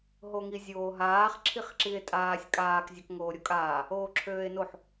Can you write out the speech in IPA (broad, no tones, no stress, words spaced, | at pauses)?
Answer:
ɦoŋizʲoːɦaːχ ǁʰiχǁie̯tʼaːsʲ kʼaːk zʲɒkŋoːɾʲokʼaː | oːǁʰøːe̯noħ